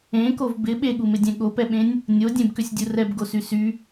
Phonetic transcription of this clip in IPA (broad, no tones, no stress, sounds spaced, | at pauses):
ẽ k o v b ɪ ɓ e ɠ u m ɪ dʲ ɛ̃ ɠ o p ɛ ɓ ẽ nʲ | nʲ o dʲ ẽ b k ʏ sʲ dʲ u r ɛ b ɡ o s y s y